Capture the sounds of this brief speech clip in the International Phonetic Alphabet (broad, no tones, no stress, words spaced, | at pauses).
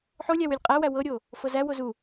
ħolʲæw ylʲqʼæwæ wɤɾʲo | fɤzæ wozu